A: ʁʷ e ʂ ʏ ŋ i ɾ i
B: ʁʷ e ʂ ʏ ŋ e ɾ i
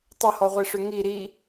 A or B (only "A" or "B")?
A